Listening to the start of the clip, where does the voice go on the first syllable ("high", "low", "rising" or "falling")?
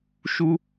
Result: high